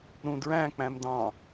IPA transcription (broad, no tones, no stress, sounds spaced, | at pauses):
ɾ ũ d ɹ æ̃ k͡p æ̃ m d ɑ̃